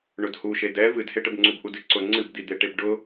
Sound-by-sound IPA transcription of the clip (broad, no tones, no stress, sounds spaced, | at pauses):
ɳ ʊ d h u ʃ e d ɛ v ɨ d h e ʈ ə b ŋ͡ǀ u b ʔ u d ɨ ǀ ʊ ŋ͡ǀ ɨ b d̪ i d̪ e ʈ e b ɖ ʊ